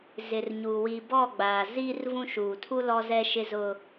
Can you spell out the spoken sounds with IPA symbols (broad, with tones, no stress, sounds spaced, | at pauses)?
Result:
z ɪ˨ r ɲ uː˨ w i˨ b ɔ˦˨ ɡ͡b aː˨ z iː˦ r v ũ˦ ʃ uː˨ tʰ u˦ l ɔ˦ z ɛ˦ ʃ ɪ˦ z ʊ˦